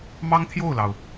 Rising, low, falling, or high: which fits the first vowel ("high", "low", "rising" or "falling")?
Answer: high